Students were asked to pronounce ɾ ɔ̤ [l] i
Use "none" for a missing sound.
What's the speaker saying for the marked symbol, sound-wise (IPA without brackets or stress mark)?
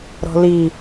l